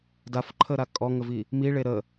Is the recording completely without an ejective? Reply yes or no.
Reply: no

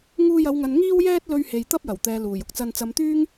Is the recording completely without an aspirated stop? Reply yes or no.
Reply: yes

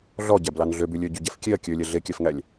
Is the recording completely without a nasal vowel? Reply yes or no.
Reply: yes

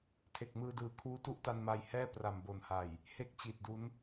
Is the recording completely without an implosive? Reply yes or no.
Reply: yes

